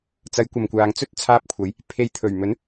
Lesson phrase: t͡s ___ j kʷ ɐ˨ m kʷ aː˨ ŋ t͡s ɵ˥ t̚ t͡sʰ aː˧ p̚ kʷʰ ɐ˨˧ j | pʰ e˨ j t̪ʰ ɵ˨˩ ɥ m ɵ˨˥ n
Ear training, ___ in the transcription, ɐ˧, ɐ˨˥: ɐ˨˥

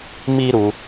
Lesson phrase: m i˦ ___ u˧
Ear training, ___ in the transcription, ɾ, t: ɾ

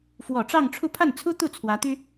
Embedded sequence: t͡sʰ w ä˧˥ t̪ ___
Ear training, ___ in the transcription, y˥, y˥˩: y˥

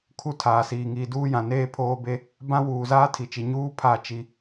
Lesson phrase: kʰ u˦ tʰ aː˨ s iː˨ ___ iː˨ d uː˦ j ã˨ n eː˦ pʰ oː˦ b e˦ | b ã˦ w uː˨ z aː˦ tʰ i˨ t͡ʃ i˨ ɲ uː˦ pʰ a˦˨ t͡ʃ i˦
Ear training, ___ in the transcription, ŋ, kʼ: ŋ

